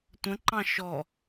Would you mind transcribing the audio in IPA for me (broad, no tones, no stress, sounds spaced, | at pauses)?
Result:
tʷ ə̃ ǃ ɑ̃ ʃ ɔ